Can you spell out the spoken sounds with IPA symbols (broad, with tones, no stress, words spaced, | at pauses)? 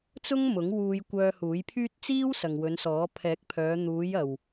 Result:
t͡sʊ˥ŋmʊ˨˥ŋwuː˧j kʷœː˧huː˨˥jpʰyː˥t̚ t͡siː˥w sɐ˨ŋwɵ˨˧nsɔː˨˥ pʰɛː˨˥k̚pʰœː˨˧ n̪uː˨˧jɐ˨w